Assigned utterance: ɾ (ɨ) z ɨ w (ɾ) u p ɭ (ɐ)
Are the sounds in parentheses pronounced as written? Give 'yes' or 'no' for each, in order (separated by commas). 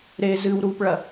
no, yes, yes